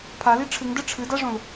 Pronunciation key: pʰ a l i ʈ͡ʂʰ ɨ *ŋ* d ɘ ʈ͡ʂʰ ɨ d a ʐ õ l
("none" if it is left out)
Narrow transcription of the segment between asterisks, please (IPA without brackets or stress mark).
ŋ